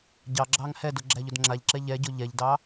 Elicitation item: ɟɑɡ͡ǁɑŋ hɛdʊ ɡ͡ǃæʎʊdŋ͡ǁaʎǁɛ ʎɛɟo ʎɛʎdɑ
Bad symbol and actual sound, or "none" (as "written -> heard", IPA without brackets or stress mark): ɡ͡ǃ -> ɡ͡ǁ